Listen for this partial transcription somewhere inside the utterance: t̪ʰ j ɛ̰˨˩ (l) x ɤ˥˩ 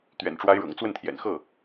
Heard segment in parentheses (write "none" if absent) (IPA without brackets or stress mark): n